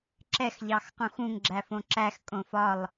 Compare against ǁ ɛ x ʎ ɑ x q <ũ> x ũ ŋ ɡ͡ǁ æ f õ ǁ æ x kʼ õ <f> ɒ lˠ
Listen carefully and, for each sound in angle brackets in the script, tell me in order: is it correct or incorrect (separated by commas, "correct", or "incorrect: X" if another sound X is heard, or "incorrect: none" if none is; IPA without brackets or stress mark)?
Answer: correct, correct